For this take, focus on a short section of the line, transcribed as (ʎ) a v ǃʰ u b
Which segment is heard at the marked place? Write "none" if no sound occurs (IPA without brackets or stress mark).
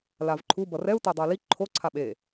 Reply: l